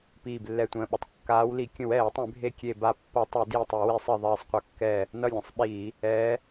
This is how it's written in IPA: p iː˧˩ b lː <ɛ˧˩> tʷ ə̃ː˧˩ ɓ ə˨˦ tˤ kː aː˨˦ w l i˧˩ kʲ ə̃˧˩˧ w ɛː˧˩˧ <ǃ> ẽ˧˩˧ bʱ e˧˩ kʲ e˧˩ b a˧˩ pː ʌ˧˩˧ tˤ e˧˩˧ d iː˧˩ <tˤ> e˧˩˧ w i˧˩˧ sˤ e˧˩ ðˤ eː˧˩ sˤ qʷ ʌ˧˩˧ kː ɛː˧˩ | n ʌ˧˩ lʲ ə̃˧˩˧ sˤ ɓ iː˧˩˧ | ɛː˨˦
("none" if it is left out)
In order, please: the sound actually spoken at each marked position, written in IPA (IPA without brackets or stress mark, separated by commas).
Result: ɛ˧˩, tˤ, tˤ